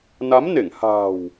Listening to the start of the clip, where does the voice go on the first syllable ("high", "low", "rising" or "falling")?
rising